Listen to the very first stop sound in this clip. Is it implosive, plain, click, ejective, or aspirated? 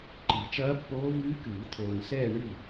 click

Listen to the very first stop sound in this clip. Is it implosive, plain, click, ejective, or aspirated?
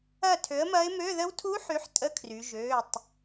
aspirated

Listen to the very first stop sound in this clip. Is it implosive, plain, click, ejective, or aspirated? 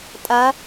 ejective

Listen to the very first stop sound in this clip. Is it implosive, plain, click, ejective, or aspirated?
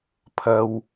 aspirated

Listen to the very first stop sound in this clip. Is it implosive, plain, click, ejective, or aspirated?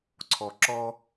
click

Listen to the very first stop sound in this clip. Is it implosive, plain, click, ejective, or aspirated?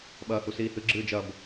implosive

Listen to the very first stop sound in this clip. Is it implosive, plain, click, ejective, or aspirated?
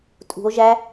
ejective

